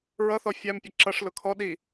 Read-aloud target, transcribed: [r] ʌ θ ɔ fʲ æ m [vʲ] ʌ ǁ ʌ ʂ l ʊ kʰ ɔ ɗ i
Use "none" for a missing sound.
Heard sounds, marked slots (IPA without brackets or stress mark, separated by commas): ɹ, pʲ